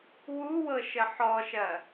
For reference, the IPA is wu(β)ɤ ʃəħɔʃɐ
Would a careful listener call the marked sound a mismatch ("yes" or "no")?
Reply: yes